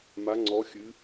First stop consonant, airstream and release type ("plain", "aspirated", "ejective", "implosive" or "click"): click